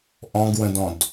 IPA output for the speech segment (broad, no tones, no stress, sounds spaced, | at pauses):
ʔ ɔ̃ ɡ w ə̃ d ɔ̃ d